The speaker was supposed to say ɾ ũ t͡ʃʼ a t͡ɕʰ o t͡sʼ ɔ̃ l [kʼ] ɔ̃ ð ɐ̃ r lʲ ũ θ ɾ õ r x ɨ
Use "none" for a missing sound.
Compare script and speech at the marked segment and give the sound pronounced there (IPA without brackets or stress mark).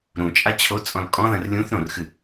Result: kʼ